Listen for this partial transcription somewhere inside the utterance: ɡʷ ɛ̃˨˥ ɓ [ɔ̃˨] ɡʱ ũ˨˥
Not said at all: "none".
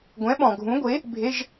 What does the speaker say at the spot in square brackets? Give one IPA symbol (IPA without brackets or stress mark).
ɔ̃˨